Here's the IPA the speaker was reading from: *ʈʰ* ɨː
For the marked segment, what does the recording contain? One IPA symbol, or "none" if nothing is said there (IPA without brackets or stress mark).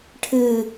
ʈʰ